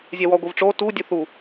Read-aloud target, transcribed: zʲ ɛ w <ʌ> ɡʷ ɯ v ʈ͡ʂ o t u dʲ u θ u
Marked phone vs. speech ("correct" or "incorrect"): incorrect